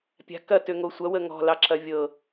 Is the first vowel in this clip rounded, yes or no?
no